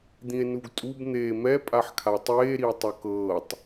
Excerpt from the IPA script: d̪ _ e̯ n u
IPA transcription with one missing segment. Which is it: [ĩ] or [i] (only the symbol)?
ĩ